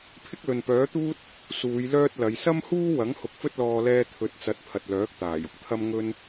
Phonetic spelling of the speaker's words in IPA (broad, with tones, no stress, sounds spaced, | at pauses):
pʰ ɪ˥ k̚ l ɵ˨ n p œː˨˥ t̪ uː˥ t̚ | s uː˨˧ j l œː˥ t̚ l ɐ˨˧ j s ɐ˥ m h uː˥ w ɐ˨˥ ŋ h ʊ˨˥ k̚ f ɵ˥ t̚ l ɔː˧ l ɛː˧ t̪ʰ ɵ˨˥ t̚ t͡s ɐ˨˥ t̚ pʰ ɐ˨ t̚ l œː˨˥ k̚ t̪ aː˨˩ j ʊ˨˥ k̚ t̪ʰ ɐ˥ m ŋ ɵ˧ n